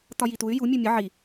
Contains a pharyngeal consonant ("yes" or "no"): yes